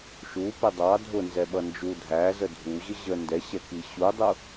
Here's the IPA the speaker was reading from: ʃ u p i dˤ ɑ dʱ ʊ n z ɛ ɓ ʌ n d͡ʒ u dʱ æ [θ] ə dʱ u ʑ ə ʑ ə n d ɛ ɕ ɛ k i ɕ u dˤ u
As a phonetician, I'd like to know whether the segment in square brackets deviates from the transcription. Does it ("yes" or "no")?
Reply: yes